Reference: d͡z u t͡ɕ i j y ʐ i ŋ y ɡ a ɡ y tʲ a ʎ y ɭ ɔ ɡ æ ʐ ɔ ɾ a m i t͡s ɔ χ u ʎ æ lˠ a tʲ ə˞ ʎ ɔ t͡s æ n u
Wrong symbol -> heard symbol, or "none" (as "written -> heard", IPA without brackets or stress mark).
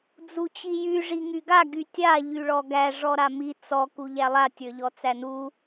χ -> k